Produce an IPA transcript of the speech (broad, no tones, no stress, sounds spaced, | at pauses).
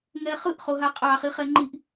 ŋ ɛ χ ɯ ʔ χ o ɦ a qʼ ɑ χ i χ ɛ ŋ͡ǃ i ʔ